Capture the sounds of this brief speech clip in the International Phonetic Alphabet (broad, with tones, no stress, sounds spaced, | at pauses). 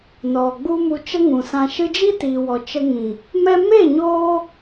n ɔ˨ ɡ͡b u˦ m u˧ t͡ʃ ə˦ ŋ ũ˨ s ã˧ ʃ ɨ˧ d͡ʒ i˦ t iː˨ w ɔ˨ t͡ʃ ə˧ ŋ ĩ˨ | m ɛ˧ m e˦˨ ɲ oː˦